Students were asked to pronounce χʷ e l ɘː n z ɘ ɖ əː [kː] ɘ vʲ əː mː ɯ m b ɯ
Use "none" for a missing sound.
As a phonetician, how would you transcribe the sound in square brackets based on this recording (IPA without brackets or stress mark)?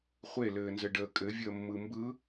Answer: kʼ